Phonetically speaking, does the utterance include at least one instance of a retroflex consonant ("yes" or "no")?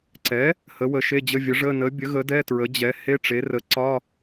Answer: yes